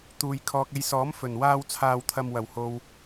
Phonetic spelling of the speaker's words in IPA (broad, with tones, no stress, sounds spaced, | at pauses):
t̪ uː˨ j kʰ ɔː˨ k̚ e˨˧ j s ɔː˨˥ m f ɵ˨˩ n w aː˥ w t͡sʰ aː˧ w t̪ʰ ɐ˧ m w ɐ˨˩ w h o˨ w